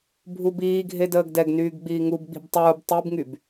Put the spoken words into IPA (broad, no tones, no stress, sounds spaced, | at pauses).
bʱ u b iː ɡʱ e d əː ɡ d ɛ ɡ n yː ɡ ɡ͡b iː ŋ u b ɡ͡b i̤ b tˤ uː b tˤ i b ŋ y b